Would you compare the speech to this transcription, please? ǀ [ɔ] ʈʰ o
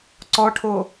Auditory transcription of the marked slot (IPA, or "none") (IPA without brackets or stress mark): ɔ